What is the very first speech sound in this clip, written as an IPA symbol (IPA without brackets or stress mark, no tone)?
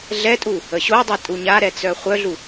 ɮ